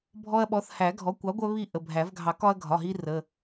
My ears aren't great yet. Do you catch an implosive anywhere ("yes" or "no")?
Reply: yes